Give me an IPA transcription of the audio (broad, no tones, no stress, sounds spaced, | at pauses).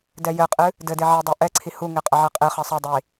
d ɛ j ɘ qʼ ɨ | d ɘ d e ʕ ɛ dˤ i ʔ ɛ ǀʰ i h u ŋ ɪ qʼ ɐ ʕ ɛ qʼ ɪ χ ɐ sˤ ɐ dˤ i